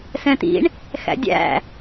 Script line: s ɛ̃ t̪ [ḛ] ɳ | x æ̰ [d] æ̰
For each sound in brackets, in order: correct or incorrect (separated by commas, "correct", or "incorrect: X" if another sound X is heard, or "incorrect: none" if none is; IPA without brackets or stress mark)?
incorrect: ḭ, incorrect: dʲ